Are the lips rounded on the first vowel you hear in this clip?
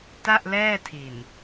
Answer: no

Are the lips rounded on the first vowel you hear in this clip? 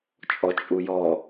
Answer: yes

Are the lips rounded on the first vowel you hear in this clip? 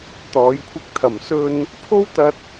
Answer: yes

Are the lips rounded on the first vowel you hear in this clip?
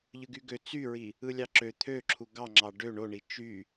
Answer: no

